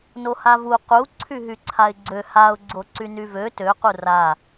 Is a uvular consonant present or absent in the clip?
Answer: present